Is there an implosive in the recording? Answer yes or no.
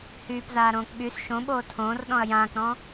yes